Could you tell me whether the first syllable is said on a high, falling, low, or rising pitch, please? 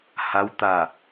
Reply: rising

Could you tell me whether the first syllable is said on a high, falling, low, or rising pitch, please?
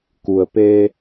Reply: low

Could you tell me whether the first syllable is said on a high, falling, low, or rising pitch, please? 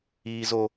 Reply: high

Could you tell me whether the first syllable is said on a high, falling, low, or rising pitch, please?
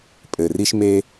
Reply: low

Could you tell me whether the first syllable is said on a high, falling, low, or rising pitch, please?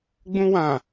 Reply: high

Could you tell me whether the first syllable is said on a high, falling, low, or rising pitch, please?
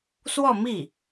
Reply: falling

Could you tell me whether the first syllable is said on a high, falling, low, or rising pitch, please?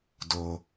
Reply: high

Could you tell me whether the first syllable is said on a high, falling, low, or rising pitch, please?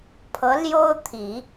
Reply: rising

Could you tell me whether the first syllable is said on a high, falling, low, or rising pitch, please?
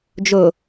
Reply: low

